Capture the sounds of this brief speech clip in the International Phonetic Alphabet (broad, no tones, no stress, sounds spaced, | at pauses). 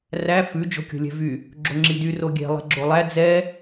r æ f ʉ d͡ʒ o̤ kʲ o̤ lʲ ɛ̤ v y | ɡ͡ǁ o ŋ͡ǁ i d y r o ɡʲ ɛ̤ lˠ ɛ̤ ɡ͡ǁ o lˠ æ d͡z ɛ